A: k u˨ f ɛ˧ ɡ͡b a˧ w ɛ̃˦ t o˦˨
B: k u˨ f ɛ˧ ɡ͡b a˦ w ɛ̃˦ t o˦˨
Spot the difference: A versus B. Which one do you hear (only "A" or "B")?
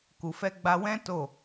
A